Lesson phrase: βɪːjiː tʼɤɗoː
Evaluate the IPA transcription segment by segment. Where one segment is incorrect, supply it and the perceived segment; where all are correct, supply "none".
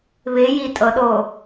none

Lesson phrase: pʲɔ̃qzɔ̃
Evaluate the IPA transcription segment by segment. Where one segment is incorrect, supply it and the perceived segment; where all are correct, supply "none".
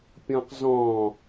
none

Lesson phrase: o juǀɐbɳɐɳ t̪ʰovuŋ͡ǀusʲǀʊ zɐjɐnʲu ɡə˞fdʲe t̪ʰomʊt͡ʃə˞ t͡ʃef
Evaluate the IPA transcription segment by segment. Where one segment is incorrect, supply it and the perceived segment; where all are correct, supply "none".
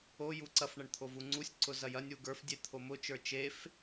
b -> f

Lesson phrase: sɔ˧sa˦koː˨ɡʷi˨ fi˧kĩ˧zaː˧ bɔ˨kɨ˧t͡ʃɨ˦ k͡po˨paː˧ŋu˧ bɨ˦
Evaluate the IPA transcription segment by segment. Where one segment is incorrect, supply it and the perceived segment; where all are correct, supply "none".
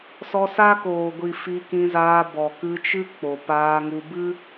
none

